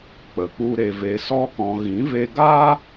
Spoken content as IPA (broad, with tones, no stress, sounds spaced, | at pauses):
k͡p ə˨ k͡p u˦ ɾ e˧ v e˧ s ɔ˦ k ɔ̃˧ ɣ ĩ˨˦ v e˧ ɡ aː˦